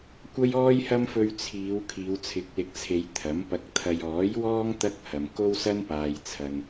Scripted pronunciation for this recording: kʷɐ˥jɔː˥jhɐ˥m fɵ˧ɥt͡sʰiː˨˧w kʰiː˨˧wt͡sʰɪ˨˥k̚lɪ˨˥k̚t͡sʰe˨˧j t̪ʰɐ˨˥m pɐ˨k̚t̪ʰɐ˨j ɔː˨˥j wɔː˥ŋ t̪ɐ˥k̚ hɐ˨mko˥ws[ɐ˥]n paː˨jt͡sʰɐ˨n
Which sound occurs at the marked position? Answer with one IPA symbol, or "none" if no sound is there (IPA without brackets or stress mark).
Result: ɐ˥